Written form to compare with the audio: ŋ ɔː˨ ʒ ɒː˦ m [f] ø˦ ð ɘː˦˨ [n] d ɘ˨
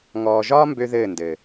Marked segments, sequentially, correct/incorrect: incorrect: b, correct

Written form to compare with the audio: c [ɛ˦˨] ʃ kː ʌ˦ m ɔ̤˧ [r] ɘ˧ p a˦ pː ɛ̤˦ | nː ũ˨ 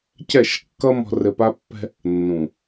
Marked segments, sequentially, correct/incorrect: correct, correct

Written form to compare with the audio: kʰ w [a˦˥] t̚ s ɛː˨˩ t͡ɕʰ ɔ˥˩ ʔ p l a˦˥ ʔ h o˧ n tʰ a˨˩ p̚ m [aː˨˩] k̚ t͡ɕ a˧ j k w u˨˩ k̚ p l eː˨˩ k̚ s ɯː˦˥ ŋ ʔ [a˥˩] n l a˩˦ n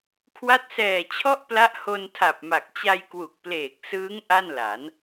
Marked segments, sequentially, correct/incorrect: correct, incorrect: a˨˩, correct

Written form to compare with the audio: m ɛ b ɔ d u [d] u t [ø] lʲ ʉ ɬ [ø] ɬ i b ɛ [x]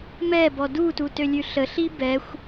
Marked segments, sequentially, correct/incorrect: incorrect: t, correct, incorrect: ə, incorrect: xʷ

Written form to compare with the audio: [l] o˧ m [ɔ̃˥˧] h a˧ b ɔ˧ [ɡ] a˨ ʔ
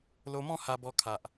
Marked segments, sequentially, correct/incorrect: correct, correct, incorrect: kʰ

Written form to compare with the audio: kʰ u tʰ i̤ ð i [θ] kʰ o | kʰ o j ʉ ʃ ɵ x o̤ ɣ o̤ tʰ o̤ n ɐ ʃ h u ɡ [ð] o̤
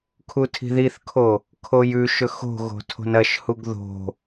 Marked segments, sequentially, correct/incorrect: correct, correct

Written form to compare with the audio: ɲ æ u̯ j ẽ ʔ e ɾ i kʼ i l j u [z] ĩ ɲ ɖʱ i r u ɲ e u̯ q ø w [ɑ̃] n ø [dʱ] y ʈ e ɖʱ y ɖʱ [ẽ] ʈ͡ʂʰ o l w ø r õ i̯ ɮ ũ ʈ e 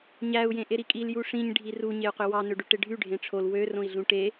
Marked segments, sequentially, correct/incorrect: incorrect: ʂ, incorrect: ɑ, incorrect: ɖ, correct

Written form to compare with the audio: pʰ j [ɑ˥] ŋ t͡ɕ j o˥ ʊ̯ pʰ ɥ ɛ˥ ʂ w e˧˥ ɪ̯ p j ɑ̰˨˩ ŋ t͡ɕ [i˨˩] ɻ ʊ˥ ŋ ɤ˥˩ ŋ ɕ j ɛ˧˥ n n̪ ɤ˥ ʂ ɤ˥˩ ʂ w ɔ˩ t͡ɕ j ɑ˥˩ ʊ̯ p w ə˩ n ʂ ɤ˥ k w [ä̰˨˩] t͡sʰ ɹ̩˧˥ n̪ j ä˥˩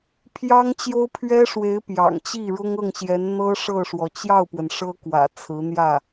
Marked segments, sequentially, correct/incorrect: correct, incorrect: i˥˩, correct

